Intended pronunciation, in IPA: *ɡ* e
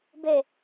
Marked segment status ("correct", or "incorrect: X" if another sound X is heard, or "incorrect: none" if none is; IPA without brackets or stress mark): incorrect: b